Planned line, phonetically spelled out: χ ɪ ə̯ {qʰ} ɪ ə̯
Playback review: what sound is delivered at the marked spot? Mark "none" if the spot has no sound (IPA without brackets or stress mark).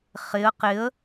q